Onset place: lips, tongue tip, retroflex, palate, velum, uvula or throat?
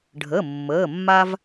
retroflex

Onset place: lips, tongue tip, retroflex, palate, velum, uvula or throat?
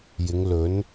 palate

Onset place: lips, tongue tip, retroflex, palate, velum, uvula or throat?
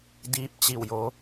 tongue tip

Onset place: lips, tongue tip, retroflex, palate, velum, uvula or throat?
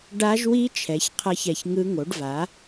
retroflex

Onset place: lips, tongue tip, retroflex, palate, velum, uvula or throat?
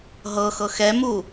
throat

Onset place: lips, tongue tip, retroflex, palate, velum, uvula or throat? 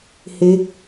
throat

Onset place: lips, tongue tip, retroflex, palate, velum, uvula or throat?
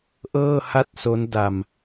throat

